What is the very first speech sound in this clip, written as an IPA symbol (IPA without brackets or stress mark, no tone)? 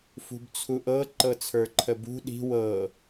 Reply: f